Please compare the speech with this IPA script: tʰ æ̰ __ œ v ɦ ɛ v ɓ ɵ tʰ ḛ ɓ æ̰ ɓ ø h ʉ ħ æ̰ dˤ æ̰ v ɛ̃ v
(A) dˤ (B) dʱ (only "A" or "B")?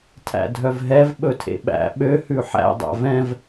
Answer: B